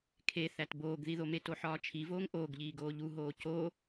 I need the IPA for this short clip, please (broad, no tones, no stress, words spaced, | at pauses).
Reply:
kʰeθæt boːɡðiðome toħɒːt͡ʃʰivoːŋ ʔoːɡʎiːɡoː ʎuɦoː co